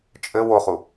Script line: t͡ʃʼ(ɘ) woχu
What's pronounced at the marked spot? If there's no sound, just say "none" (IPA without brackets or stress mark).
ɘ